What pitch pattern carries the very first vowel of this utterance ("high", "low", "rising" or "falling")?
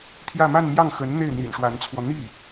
falling